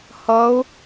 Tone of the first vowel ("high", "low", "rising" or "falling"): rising